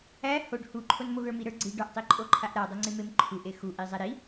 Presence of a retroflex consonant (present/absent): present